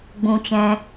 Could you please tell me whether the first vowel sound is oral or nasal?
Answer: nasal